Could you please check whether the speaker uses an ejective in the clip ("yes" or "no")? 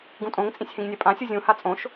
yes